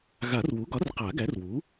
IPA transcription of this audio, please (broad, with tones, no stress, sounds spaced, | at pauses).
ɣ a˨˩˦ r w u˩˥ ɡ ɒ˩˥ r q a˨˩˦ ɡ æ˩˥ r w u˩˥